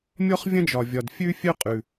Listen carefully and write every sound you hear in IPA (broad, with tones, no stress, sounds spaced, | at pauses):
mʲ ɔ˥ χ vʲ ɐ̃˥ d͡ʒ ɒ˩ vʲ ɒ˩ d fʲ ʉ˥ fʲ œ˥ qʼ ʉ˩